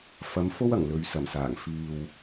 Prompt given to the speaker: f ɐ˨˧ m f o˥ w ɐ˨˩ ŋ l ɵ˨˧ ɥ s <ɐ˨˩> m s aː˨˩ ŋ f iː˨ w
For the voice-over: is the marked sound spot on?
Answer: yes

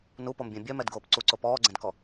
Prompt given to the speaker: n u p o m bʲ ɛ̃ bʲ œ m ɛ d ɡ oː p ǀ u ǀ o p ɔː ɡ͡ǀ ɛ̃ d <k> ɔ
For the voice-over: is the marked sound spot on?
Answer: yes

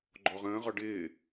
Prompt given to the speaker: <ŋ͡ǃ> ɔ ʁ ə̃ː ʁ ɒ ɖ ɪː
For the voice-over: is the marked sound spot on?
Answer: no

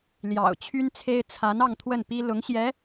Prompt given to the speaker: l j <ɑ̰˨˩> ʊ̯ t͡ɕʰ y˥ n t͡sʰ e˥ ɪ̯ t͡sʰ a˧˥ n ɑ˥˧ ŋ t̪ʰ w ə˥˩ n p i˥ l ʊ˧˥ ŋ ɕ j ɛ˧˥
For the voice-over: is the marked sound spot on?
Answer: yes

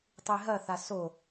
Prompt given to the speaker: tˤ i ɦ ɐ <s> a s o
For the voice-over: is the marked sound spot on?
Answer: no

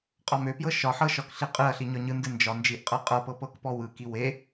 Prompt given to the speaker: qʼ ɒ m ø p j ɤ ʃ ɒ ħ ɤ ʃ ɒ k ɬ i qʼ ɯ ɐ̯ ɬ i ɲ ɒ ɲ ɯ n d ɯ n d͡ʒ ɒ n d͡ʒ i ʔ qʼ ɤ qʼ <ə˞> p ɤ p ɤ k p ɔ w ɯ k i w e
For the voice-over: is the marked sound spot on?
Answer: no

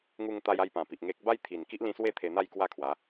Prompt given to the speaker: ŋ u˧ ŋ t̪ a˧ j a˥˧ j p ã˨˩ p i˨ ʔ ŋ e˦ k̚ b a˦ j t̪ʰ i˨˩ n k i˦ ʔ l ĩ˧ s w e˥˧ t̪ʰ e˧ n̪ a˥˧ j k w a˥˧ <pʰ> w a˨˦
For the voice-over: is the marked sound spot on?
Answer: no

